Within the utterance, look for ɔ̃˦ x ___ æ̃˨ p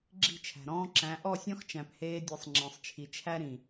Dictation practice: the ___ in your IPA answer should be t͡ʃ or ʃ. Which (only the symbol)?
t͡ʃ